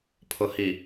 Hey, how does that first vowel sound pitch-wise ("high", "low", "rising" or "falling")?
low